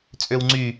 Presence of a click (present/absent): present